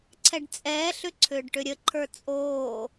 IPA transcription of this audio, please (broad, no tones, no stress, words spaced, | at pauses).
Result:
ǀʰɛɖt͡sʼɛːɬʏ ǀʰʏːɖʈʏɾʲəǃʰə˞ t͡sʼoː